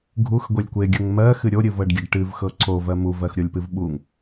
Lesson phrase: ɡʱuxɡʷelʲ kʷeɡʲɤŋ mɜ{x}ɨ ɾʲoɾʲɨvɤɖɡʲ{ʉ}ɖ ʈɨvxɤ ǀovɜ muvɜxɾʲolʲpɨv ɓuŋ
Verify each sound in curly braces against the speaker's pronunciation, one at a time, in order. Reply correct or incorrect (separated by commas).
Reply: correct, incorrect